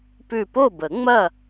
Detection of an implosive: absent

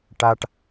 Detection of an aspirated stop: absent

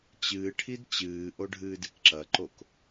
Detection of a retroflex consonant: present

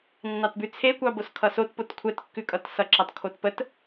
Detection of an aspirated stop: present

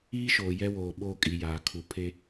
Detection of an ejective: present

